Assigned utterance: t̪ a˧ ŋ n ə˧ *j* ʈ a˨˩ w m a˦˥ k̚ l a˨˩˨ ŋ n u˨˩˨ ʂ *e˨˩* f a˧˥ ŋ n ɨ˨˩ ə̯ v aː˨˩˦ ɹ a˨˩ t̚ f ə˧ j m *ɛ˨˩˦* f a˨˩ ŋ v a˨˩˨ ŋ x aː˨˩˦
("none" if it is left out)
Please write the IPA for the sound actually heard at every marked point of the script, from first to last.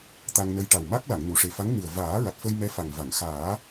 j, e˨˩, ɛ˧˥

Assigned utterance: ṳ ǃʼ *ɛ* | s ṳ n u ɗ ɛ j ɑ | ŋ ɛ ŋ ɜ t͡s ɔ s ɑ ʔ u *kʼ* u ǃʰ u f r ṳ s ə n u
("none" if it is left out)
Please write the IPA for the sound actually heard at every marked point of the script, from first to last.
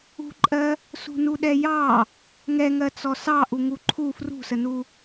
ɜ, ŋ

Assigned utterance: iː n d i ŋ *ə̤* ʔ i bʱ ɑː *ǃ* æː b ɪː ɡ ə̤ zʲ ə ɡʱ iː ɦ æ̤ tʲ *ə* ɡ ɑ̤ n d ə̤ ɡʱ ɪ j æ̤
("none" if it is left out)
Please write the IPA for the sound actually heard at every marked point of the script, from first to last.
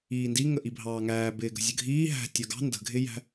ə, ŋ, ə˞

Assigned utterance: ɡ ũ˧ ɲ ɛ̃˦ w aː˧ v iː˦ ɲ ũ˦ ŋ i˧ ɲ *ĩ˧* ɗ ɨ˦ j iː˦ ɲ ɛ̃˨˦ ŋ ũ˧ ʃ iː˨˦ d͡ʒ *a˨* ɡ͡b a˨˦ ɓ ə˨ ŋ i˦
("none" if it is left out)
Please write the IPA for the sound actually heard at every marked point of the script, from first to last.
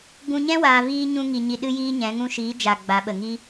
i˧, a˨

